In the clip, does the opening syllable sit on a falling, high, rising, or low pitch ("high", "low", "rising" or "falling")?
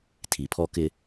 low